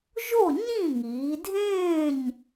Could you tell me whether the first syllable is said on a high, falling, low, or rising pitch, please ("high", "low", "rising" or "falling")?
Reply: falling